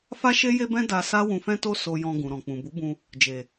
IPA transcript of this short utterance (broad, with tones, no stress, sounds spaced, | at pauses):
f a˦ ʃ e˦ j e˦ b ɛ̃˦ d a˧ s a˦ w ũ˧ f ɛ̃˦ t o˦ s o˧ j ɔ̃˧ ɡ ũ˨ ɾ ɔ̃˨ k͡p ũ˨ b u˨˦ b ũ˧ | d͡ʒ e˨